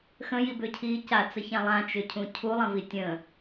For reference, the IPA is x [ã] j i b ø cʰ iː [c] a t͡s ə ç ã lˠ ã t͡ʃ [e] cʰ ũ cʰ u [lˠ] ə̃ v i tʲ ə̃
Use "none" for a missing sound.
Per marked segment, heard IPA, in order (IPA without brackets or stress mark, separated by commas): ə̃, c, ø, lˠ